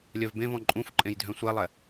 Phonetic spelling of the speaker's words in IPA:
lʲ œ v b ẽ v ɔ̃ ǃʼ ũ f ǃʼ ẽ j dʱ œ̃ sʷ ɛ lˠ ɛ

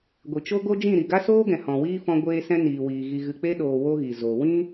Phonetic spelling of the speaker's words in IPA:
ɡʷ i˨ t͡ʃ o˦ ɡ o˦ d͡ʒ ĩ˦˨ ɾ i˨ ɡ a˦ s oː˦ ɡ ɛ̃˨ h ɔ̃˨ w iː˦ f ɔ̃˧ ɡʷ eː˧ s ɛ̃˧ n iː˨ w iː˨ ɣ i˨ ɣ ɨ˨ k͡p e˧ ɗ oː˨ w o˦ ɣ i˨ z o˨ w ĩ˦

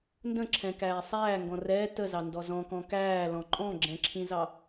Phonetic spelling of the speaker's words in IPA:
n d ə̃ ǁʰ ɛ̃ k æː sˤ æː ŋ ɡ ɔ̃ r ɛː t ə z ɑ n d ɔ z ɔ̃ k ɔ̃ k æː l ɔ̃ ǃʼ ɔ̃ ɡ͡ǁ ɛ̃ ǁʰ ĩ z ɑ

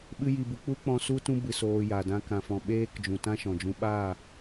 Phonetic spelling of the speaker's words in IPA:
ɓ ɨ˧ j i˨ b u˨ k͡p u˦ k͡p ɔ̃˧ s u˦ t ũ˦ b ɨ˧ s oː˧ j a˨ d ã˧ k ã˨ f ɔ̃˨ ɓ eː˦ k d͡ʒ ũ˨ t ã˦ ʃ ɔ̃˨ d͡ʒ ũ˧ ɓ aː˦˨

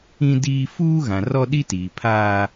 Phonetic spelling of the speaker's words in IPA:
ĩ˦ d iː˦ f uː˦ ɣ ã˨ r ɔ˦ ɗ i˦ t iː˨ pʰ aː˦

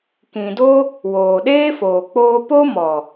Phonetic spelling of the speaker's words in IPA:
k ĩ˨ d o˦ | w oː˨ ɗ eː˦ f oː˨ k͡p oː˧ p o˦ m ɔ˨

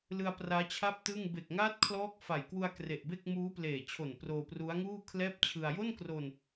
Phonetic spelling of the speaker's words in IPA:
l ɯ˧ a̯ p r aː˦˥ t͡ɕʰ a˥˩ p̚ t ɯ˥˩ ŋ b e˨˩ k̚ ŋ aː˦˥ t̚ kʰ l ɔː˦˥ k̚ f a˨˩ j k w u˧ a̯ k r e˨˩ ʔ b e˥˩ k̚ m uː˦˥ p l eː˨˩ t͡ɕʰ o˨˩ n p r oː˧ p r u˦˥ a̯ ŋ uː˥˩ kʰ l ɛː˥˩ p̚ t͡ɕʰ ɯ˧ a̯ j o˥˩ n k r o˧ n

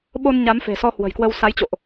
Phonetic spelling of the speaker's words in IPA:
ɓ o˧ n ɲ a˨˦ m f e̤˨˩ s ɔ˧ h w ə̤˨˩ j k w ə˧ w s a˨˦ j t͡ɕ o̰˧˨ ʔ

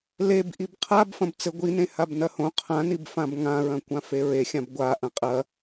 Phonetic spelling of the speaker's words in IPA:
l e b ʔ i b qʰ a b f ɐ̃ b t͡s ɘ ɡʷ i n ẽ h a b n ɐ h õ qʰ ã n i b f ã b ŋ ã ɹ ɐ̃ kʷ ã f e ɹ e xʲ ã b ɡʷ a ʔ ɐ̃ qʼ ɐ

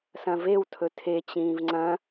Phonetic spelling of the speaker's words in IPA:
s ɐ̃ v e w tʰ ɵ tʰ e t͡ɕ ĩː v ŋ͡ǀ ɐ̃

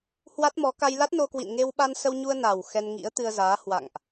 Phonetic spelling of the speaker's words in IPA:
h w a˦˥ t̚ m ɔ˨˦ k a˧ j l a˦˥ t̚ n o˧ k w ḭ˧˨ n ŋ e˧ w ɓ a˧ n s ə˧ w ɲ u˧ ə̯ n a˨˩ w x ɛ˧ n ŋ ḭ˧˥ ə̯ t̪ ɨ˧ ə̯ z aː˨˦ h w a̰˧˨ ŋ ʔ

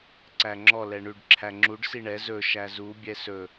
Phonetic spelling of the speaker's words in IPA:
ǀ æ ŋ͡ǁ ɔ l ɛ ɳ ʉ ɖ ǁʰ æ ŋ͡ǁ u ɖ s i ɳ ɛ z ɵ ʃ æ z u bʲ ɛ s ɵ

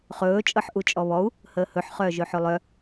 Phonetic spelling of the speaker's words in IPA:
χ ɵː t͡ʃʼ ɤ ħ ʔ u t͡ʃʼ ɔ β ɔ u̯ | h əː h ɵ ħ χ œː ʒ ɵ ħ ɵ lˠ œ

